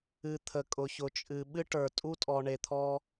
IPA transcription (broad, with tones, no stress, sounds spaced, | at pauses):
ɨ˨ t̪ʰ ə˨ kʼ ʊ˨ ç ʊ˨ t͡ʃʼ ɨ˨ ɓ ɨ˦ ʈ ə˞˨ tʼ u˦ tʼ ɔ˨ ɳ e˨ t̪ʰ ɔ˦